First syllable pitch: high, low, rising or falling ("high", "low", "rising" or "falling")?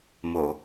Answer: low